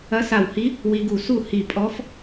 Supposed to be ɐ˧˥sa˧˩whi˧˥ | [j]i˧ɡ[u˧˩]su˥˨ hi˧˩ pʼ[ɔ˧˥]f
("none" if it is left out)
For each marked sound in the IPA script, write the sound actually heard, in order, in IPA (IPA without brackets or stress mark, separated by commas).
w, u˧˩, ɔ˧˥